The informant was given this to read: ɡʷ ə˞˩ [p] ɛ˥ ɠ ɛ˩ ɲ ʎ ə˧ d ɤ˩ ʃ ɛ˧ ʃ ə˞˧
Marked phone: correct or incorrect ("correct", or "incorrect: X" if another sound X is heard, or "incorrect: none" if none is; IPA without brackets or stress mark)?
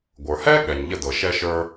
incorrect: h